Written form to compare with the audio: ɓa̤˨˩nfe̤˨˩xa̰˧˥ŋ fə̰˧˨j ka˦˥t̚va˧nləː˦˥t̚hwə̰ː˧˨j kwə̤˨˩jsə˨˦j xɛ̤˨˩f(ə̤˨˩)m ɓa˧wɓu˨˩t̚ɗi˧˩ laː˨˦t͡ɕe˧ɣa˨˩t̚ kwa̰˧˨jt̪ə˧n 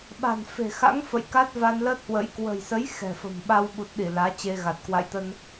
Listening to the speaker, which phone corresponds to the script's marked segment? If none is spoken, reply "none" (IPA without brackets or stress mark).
ə̤˨˩